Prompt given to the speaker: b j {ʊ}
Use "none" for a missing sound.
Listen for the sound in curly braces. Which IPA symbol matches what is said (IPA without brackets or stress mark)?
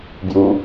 u